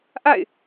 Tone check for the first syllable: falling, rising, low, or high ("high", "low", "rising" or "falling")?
falling